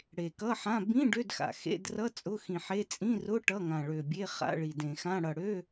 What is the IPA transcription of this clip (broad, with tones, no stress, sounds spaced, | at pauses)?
ɽ e˨˩ k ʌ˧˥˧ ħ ã˧˥˧ b ĩ˧˥˧ ɖ ø˧˥˧ d x a̰˨˩ x ḛ˧˥˧ d r ʌ˧˥˧ t͡sʼ ʊ˧˥˧ x ĩ˨˩ ħ e˧˥˧ t͡sʼ ĩ˧˥˧ r ʊ˧˥˧ ʈ ʌ˧˥˧ ŋ ã˨˩ ɭ ø˨˩ bʲ e˧˥˧ χ a̰˧˥˧ ɭ i˨˩ d ẽ˨˩ x ã˧˥˧ ɽ ʌ˨˩ ɽ ø˧˥˧